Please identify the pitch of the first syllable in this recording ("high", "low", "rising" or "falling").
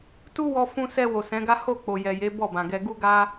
high